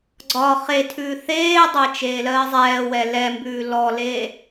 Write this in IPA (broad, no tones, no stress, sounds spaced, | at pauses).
ɡ͡ǀ ɒ χ e tʰ ʉː θ eː dˤ e t͡ʃ eː l ɜː zˤ ɛː w ɛ l ɛ m b ʉː l ɔ l e